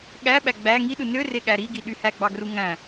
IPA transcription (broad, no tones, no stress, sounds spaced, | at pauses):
ɠ æ ɓ æ ɡ͡b æ ŋ i ɗ ɯ n ø r e ɠ æ ɾ i ɡ i ɗ y h æ ɡ͡b ɑ ɡ r u ŋ æ̃